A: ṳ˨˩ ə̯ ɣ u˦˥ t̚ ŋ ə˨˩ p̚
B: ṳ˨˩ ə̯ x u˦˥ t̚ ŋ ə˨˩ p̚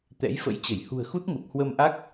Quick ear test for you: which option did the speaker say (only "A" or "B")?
B